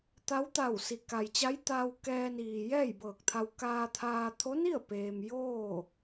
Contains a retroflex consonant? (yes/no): no